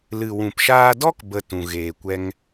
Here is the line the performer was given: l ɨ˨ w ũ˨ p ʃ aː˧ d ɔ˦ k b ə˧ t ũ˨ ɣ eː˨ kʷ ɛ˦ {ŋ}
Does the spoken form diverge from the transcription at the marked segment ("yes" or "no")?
no